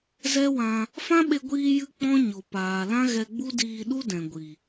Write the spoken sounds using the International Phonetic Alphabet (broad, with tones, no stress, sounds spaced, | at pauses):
z ɛ˦ w ã˧ | f ã˦ ɓ e˧ ɡʷ iː˧ j ɨ˧ k͡p ɔ̃˦ ɲ o˨ p aː˨ l ã˦ ɣ ɛ˧ ɡ͡b u˦ d iː˧ ɗ u˦ d ɛ̃˨ ɡʷ i˨